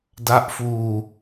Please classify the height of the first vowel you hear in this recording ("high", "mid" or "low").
low